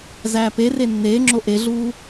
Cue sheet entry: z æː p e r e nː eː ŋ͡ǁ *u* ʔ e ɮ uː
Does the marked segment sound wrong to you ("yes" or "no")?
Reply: yes